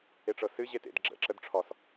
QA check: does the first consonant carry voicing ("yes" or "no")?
no